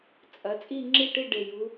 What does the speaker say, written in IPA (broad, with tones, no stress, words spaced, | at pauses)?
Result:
t͡sʼɐ˩˧ t͡sʼi˥˧ŋ͡ǁi˥˩ʈi˥˧ ɖe˨˩ju˩˧